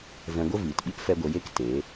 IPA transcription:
v ɛ̃˧ ɡʷ ə˦ v iː˨ t ɓ i˦ p f ɛ˦ ɡʷ ə˧ j e˦ k t e˨˦

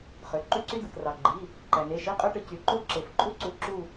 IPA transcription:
χ ø˩˧ ǃ y˥ ǀ y˥ d ɯ˩ k r ɑ˩ ɡ͡ǃ i˩˧˩ | ǃ æ˩ n̪ e˩˧˩ ʃ i˧˥˧ qʼ ø˥ ʈ ɯ˩˧ c y˩˧ ǃ o˥ ǁ e˩ f ǃʼ u˥ ǀ u˩˧˩ ǁ u˦˨

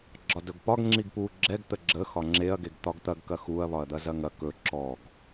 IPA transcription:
ɡ͡ǁ ɒ d ɵ ɡ p ɒ ɡ ŋ͡ǁ i ɡ p u ɡ͡ǁ ɛ ɡ t̪ ə ɡ͡ǁ ə x ɒ ŋ͡ǁ e ɐ̯ ɡ e ɡ t̪ ɒ ɡ t̪ ɐ ɡ k ɐ x u ɐ̯ β ɒ ɐ̯ d̪ ɐ z ɐ ŋ ɐ k ɵ ǁ ɔ ɡ

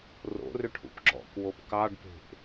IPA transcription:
r o̰ r ʏ ʈʰ ṵ p ɡ͡ǁ ɔ̰ k w o p k ɑ ɖ p e̤ ʔ

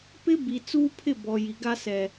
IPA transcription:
p ɪ˦ b i˨ t͡s uː˦ pʰ ɪ˦˨ b ɔ˨ j i˨ ɡ a˦ s ɛ˨

